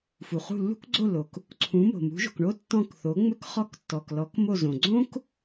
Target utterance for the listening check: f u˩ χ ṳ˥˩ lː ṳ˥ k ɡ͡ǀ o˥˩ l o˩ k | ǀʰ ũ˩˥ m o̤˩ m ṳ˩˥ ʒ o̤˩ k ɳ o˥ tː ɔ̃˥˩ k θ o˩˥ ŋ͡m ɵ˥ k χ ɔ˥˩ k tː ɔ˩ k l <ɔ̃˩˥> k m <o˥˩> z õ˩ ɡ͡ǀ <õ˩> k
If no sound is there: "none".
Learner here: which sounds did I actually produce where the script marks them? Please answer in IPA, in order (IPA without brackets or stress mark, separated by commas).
ɔ˩˥, o˥˩, õ˥